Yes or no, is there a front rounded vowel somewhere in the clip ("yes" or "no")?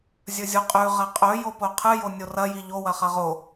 no